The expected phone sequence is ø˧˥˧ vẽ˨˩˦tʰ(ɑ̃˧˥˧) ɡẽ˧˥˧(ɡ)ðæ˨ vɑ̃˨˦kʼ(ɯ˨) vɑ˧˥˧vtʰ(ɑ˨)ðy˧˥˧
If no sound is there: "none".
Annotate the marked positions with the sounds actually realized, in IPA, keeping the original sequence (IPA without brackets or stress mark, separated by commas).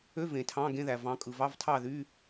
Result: ɑ̃˧˥˧, none, ɯ˨, ɑ˥˨